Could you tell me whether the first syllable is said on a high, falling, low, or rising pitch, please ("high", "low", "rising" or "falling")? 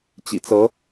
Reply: low